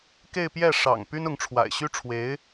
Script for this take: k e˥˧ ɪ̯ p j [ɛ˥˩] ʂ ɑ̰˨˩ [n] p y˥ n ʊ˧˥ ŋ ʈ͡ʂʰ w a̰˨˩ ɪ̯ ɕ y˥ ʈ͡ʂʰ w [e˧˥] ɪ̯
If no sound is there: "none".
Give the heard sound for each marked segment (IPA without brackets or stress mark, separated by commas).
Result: ɛ˥˩, ŋ, e˧˥